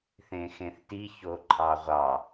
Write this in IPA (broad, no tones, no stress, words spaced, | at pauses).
θẽxẽθti çoǃʰɑʁʷɑ